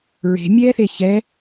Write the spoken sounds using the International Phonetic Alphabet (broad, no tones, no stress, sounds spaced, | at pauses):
ɹ e̤ mʲ ɛː θ e ç ɛ